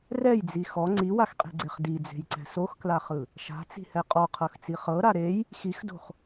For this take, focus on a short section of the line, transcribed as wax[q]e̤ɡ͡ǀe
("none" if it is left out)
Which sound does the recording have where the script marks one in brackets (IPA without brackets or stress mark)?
qʼ